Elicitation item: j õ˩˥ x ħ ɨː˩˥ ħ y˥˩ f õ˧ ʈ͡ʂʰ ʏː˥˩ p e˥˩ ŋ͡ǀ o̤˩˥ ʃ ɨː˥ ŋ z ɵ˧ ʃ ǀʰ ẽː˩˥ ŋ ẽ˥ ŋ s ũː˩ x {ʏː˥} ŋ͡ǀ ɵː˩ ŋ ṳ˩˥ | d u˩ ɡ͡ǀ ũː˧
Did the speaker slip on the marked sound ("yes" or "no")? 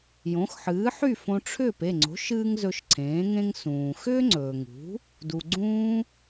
no